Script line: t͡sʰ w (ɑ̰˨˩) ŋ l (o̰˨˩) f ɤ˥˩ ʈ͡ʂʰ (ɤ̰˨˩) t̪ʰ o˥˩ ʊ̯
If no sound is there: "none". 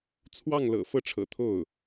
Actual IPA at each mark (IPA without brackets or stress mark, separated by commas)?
ɑ˥˩, ɤ̰˨˩, ɤ̰˨˩